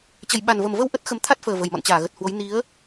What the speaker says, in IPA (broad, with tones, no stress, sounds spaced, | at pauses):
t͡ɕ ə˨˩ j ɓ a˨˩ n v ə˨˩ m v ə˧ w ʔ ə˦˥ t̚ x ə˨˦ m t̪ʰ a˦˥ t̚ f əː˨˩ v ə˨˩ j m ɔ̰˧˨ n t͡ɕ aː˧˩ ɣ ə˨˩ t̚ h w o˨˦ j n i˨˦ ə̯